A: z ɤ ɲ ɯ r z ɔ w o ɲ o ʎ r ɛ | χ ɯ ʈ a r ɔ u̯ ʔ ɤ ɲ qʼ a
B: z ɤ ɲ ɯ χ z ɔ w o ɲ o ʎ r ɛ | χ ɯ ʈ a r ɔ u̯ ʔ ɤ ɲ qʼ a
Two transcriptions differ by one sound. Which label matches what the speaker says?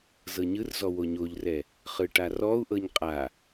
A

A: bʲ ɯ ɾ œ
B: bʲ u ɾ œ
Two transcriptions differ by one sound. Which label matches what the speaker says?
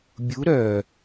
B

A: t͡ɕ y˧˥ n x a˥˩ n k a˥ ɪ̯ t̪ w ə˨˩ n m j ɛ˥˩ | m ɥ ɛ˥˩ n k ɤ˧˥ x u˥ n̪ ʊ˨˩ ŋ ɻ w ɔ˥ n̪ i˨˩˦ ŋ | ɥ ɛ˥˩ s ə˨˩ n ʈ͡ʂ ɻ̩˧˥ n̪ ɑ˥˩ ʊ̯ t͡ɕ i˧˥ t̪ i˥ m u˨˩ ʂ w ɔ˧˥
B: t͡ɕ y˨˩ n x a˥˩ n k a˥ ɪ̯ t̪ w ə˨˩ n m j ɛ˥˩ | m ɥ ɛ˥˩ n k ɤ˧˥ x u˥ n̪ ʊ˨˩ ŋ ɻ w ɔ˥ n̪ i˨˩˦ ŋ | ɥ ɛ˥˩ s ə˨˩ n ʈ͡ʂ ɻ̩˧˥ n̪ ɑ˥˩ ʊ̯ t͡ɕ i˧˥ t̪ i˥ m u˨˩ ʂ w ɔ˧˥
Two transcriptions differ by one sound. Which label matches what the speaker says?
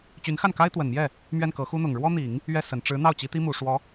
A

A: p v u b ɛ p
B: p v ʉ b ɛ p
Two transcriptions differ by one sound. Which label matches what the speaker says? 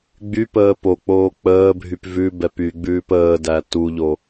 B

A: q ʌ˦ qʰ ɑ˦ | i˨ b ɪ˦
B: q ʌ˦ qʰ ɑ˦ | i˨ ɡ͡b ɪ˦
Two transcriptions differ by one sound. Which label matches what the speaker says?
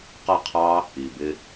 A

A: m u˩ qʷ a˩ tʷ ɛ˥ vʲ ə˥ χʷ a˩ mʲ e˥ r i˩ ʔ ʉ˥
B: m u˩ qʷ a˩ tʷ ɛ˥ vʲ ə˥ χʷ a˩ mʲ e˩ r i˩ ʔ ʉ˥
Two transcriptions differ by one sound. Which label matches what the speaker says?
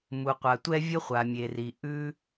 B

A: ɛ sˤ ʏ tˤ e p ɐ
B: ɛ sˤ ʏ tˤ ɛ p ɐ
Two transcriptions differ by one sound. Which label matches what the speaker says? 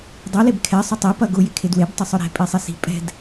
A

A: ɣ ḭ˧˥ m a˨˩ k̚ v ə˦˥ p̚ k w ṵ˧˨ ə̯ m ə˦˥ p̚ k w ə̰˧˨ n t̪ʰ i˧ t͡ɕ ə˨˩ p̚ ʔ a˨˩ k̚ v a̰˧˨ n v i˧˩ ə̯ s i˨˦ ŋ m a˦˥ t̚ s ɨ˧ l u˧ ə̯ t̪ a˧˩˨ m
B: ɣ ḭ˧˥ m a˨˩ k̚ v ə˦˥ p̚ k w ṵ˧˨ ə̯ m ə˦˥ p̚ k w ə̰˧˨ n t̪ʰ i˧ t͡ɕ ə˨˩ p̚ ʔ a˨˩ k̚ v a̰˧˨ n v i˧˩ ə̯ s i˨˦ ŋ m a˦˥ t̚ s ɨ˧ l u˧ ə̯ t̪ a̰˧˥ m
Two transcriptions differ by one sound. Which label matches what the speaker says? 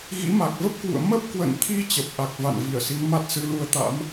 B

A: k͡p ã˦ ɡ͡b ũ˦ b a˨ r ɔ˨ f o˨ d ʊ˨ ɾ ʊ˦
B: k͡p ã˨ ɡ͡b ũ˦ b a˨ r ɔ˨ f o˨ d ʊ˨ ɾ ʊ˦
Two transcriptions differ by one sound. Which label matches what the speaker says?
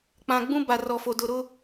B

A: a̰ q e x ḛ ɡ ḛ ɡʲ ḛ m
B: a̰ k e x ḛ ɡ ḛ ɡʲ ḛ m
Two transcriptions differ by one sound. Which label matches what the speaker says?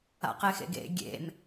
A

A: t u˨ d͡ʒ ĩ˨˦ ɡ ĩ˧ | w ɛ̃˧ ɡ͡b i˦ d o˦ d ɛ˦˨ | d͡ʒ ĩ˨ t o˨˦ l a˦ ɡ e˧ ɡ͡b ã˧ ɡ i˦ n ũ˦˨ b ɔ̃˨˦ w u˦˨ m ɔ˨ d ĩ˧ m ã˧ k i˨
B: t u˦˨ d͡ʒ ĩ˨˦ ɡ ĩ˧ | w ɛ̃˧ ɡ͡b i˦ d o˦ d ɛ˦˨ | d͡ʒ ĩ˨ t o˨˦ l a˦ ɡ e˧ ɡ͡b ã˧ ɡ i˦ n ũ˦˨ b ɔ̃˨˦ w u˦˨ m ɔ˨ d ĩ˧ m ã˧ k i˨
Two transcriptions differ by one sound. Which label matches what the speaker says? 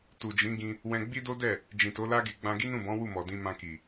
A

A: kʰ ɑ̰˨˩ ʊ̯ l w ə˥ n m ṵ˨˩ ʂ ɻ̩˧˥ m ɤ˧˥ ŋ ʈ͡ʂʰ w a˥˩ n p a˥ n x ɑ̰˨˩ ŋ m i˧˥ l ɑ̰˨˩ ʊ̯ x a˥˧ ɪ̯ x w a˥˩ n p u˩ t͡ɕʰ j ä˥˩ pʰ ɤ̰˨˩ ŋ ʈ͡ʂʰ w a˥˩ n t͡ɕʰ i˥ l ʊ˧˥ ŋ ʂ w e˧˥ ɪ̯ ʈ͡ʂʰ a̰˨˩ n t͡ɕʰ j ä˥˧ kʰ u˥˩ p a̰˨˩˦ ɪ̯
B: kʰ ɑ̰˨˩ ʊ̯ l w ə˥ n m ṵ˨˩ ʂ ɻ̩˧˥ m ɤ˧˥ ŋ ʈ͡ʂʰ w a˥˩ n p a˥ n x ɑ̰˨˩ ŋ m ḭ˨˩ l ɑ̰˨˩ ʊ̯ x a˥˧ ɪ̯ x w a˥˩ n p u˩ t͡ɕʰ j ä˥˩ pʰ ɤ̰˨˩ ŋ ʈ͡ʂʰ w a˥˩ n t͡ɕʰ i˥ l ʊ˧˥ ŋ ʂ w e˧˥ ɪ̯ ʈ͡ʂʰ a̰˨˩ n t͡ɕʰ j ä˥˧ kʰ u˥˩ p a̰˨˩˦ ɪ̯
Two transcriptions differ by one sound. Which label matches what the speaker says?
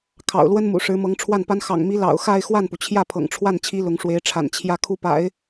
A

